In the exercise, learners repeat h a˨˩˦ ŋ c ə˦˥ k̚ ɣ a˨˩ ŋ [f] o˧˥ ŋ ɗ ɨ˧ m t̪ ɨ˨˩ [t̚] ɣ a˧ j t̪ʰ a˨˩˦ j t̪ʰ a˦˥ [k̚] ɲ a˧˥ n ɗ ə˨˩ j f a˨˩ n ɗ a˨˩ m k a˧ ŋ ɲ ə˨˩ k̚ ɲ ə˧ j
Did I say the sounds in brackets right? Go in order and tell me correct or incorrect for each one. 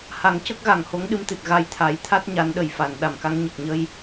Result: incorrect: h, correct, incorrect: t̚

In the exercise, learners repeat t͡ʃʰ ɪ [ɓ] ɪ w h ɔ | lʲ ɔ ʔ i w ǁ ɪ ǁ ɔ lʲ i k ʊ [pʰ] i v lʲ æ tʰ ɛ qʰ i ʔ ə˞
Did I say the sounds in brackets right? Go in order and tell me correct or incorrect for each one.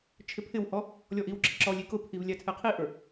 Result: incorrect: pʰ, correct

